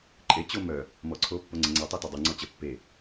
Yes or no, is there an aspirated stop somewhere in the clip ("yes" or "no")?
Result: yes